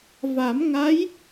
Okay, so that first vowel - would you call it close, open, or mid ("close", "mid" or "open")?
open